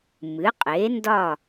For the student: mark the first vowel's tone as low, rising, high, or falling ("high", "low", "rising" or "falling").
rising